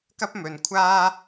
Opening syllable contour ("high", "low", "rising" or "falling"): high